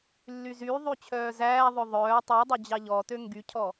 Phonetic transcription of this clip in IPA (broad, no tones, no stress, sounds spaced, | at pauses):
lː y z y ðˤ y t͡ɕʰ œː z æː ðˤ ɵ ðˤ œː tˤ y dˤ œ d͡ʑ ɑ ʎ ɔ t ø ŋ ɡ y cʰ ɔ